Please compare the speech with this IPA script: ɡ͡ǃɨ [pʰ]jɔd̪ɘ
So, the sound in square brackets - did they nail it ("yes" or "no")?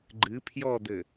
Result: yes